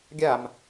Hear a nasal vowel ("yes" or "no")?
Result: no